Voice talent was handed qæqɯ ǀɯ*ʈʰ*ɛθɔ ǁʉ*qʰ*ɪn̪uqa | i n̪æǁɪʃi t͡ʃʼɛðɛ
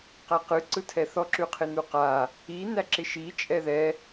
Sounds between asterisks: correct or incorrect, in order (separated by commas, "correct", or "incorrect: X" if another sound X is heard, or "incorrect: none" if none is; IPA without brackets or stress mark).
incorrect: tʰ, correct